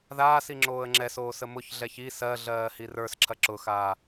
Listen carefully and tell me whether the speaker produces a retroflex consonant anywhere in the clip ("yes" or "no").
no